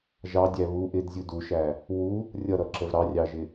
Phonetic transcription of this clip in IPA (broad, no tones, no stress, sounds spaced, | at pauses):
ʒ ɑ dʲ æ β u ʔ ɪ d zʲ u d u ʃ æ | w u | rʲ ʌ ɾ ʌ ǁ ə v ɾ ɑ rʲ ɑ ʒ ɪ